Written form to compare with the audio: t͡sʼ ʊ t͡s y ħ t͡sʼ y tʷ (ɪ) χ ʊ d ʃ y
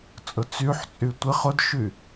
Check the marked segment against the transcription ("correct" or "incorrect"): correct